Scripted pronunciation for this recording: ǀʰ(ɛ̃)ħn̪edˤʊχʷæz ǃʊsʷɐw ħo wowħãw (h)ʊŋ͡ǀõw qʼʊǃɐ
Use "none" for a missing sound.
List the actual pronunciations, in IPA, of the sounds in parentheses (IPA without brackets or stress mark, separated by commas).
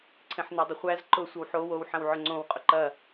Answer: ẽ, ʕ